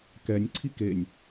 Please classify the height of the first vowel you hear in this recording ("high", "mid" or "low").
mid